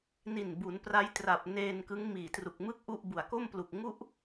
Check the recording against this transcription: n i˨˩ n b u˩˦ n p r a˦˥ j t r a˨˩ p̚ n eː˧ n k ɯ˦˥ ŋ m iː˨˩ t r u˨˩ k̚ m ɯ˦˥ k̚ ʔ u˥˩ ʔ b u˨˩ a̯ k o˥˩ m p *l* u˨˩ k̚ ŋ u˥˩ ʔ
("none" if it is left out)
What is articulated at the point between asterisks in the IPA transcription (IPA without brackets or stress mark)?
l